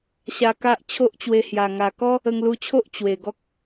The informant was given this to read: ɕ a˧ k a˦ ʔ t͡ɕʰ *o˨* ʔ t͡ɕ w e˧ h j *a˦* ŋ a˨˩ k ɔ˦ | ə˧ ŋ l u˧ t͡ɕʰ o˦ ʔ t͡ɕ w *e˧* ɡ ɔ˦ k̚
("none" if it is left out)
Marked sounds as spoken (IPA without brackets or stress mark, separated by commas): o˦, a˨˩, e˨˩